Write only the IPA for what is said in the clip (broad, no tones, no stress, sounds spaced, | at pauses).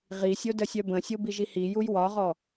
ʁ i sʲ o d ə sʲ œ b ə̃ sʲ o b i ʒ i h i j u j w ɒ ʁ ɔ